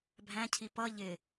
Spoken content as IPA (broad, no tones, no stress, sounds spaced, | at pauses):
bʱ æ̃ cʰ i p ʌ ʎ ɪ